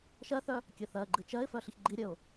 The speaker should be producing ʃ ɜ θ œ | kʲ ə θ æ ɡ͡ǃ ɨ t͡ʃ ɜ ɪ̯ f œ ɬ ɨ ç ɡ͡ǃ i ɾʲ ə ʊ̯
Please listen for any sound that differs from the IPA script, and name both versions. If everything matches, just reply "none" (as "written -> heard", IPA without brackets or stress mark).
æ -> ɜ